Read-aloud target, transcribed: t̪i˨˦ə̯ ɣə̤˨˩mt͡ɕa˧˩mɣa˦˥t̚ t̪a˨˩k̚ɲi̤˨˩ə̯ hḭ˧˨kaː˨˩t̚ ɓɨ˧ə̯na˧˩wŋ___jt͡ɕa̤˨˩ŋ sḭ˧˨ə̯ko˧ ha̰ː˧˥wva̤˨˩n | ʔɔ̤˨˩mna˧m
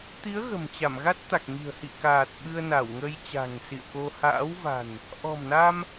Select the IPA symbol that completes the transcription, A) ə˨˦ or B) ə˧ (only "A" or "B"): B